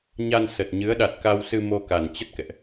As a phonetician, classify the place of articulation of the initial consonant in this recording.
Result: palatal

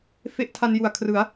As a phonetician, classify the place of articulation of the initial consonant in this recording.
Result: labial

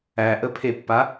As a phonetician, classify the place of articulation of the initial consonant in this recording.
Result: glottal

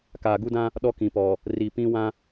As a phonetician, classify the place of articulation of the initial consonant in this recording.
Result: velar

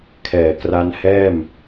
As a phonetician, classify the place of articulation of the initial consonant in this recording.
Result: velar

